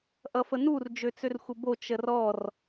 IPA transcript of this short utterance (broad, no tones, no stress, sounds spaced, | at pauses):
ʔ ʌ f ə n u r d͡ʒ ø t͡s ø r xʷ ə b o t͡ʃ ə r ɔ r